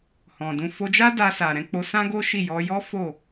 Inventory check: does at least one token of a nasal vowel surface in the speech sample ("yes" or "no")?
yes